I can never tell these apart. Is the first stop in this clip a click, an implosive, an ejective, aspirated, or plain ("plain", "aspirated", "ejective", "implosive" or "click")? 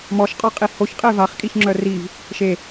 ejective